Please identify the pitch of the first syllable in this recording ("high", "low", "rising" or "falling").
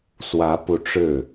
rising